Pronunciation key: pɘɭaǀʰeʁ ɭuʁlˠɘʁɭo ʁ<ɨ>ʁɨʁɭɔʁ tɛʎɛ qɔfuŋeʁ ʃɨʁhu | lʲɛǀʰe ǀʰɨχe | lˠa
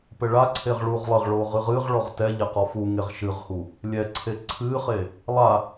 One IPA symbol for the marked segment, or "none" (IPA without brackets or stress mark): ɨ